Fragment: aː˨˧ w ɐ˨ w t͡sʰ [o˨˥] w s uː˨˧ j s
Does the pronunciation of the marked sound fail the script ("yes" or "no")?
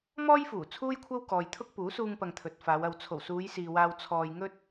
yes